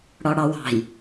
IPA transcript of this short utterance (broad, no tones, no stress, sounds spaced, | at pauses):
ɽ ɒ ɽ ɑ w ɑ̤ j